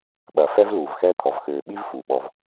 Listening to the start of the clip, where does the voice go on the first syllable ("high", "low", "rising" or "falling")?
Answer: low